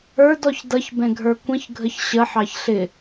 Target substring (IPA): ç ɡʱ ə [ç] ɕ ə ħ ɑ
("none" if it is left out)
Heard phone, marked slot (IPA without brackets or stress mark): ç